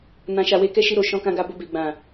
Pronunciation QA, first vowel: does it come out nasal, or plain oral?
nasal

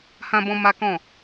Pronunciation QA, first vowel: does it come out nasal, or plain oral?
nasal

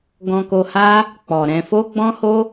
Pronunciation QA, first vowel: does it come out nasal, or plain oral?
nasal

